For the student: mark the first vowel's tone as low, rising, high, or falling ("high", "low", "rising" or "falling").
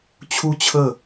high